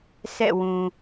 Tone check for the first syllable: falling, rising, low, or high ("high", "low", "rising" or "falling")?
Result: falling